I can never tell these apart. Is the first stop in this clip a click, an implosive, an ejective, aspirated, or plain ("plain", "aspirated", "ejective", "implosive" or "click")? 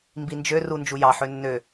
plain